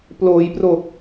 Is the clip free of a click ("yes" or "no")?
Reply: yes